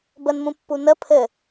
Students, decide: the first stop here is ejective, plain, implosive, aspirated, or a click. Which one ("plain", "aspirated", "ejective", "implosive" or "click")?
plain